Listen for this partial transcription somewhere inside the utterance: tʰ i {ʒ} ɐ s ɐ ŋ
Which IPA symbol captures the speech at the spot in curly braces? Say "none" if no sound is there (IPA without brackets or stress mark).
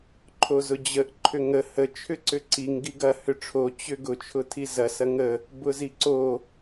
z